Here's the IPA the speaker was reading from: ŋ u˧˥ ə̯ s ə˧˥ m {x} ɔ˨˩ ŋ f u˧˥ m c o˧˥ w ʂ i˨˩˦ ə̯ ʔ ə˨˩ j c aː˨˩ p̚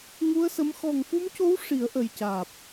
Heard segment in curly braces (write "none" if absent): x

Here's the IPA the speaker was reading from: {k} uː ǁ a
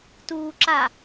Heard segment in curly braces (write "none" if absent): t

